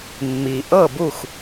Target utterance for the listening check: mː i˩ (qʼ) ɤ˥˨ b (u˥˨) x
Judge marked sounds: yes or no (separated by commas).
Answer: no, yes